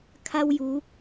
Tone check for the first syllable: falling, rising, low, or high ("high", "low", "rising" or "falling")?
high